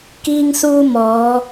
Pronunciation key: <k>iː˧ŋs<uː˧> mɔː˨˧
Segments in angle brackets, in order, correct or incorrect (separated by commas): correct, correct